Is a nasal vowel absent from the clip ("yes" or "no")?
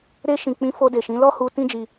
no